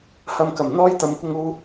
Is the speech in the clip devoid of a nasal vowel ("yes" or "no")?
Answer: yes